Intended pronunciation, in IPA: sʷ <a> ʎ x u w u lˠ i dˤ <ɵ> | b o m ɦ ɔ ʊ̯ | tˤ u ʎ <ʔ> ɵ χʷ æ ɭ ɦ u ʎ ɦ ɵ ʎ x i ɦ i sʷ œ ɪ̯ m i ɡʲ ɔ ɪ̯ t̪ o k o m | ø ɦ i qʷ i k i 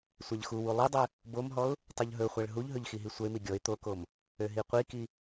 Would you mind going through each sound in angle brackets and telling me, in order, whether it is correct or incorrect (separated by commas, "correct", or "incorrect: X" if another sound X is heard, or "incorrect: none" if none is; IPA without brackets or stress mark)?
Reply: correct, incorrect: ø, incorrect: ɦ